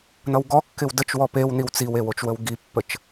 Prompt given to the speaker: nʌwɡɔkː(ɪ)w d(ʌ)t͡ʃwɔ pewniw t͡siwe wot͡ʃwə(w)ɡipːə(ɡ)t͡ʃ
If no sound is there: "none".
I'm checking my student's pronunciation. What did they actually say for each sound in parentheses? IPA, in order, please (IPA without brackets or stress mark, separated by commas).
ɪ, ə, w, none